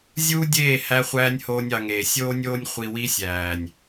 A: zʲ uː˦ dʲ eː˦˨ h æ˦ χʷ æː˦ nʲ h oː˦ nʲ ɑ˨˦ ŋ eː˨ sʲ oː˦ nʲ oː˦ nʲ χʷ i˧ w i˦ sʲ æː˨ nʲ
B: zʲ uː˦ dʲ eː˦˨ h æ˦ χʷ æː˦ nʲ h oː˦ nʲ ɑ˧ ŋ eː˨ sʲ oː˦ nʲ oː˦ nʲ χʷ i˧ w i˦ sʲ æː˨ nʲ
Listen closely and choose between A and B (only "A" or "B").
B